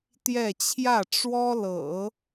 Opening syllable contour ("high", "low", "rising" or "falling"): falling